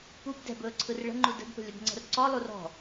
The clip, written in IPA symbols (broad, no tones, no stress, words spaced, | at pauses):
pub dɛ̤bɵːǀʰɯr ɭə̤ŋ͡ǃu də̤dpə̤ lʲəbŋ͡ǀə̤rǀɔ lˠurɔ̤